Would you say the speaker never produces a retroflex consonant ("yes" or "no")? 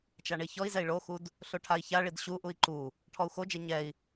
no